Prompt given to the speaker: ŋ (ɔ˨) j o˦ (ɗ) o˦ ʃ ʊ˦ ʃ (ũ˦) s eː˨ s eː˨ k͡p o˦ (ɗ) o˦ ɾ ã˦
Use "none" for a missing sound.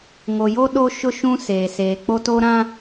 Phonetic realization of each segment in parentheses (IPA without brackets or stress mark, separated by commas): o˨, ɗ, ũ˦, t